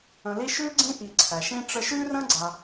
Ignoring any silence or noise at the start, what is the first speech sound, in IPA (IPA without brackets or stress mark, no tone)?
ə̃